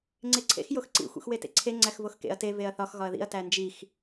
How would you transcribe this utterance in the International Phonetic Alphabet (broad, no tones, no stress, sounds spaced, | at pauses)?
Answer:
ŋ͡ǀ e ǀʰ ḛ x j o x ǀ ḭ xʷ ḭ x w e t ḛ ǀʰ e ŋ͡ǀ æ x v o x k ḛ ɐ̯ t e v e ɐ̯ θ ɒ x ɣ ɒ ɐ̯ ð ḭ ɐ̯ t æ n d͡ʒ i x